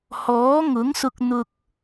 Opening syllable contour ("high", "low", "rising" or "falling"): rising